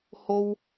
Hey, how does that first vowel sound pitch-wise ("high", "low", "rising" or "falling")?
high